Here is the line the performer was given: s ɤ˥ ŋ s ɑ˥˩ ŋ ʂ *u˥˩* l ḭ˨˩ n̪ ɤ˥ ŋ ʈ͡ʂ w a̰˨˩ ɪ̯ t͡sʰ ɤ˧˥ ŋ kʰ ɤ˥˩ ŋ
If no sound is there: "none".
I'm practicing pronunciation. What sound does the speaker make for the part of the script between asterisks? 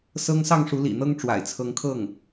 u˧˥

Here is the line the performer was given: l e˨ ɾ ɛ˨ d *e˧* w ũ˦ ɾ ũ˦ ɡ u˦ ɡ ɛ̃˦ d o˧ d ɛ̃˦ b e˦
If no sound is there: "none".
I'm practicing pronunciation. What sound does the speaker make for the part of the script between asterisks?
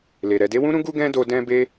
e˨˦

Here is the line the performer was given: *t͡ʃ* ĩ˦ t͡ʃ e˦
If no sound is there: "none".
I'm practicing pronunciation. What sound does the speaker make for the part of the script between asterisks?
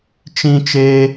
t͡ʃ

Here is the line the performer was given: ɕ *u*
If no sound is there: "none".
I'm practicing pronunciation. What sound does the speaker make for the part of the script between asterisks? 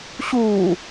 uː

